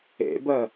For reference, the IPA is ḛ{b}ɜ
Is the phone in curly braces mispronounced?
no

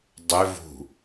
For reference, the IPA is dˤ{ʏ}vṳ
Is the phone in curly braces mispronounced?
no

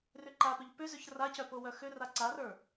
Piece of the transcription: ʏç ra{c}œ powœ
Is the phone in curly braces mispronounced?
no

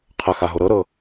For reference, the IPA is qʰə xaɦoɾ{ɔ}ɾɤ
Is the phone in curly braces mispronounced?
yes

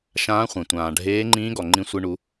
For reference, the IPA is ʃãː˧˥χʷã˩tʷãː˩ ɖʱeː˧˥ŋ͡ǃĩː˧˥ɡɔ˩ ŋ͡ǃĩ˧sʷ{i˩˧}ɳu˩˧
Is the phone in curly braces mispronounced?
yes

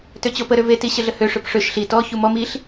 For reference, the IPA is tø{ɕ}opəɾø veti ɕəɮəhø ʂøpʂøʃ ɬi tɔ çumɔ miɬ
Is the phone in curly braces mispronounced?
yes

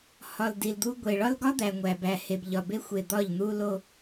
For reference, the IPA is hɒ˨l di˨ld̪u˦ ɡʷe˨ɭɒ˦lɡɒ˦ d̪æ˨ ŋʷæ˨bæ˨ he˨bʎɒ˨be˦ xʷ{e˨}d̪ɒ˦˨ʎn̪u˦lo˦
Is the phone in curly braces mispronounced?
no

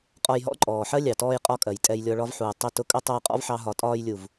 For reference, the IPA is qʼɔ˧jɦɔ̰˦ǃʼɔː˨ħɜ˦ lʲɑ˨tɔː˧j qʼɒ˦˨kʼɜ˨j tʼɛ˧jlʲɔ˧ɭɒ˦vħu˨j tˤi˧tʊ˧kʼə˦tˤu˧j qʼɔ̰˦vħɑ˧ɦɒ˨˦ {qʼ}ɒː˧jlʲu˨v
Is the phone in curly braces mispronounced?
yes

